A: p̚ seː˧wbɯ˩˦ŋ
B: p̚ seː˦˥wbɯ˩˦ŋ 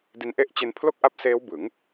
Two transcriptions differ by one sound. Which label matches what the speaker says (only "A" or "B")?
B